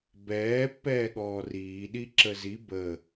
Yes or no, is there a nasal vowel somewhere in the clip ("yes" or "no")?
no